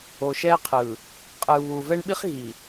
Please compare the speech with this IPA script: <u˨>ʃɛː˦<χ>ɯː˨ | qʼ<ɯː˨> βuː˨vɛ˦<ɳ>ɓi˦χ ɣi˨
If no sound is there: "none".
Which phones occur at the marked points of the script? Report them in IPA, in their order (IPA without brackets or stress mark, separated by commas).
o˨, qʰ, ɯː˨, ɳ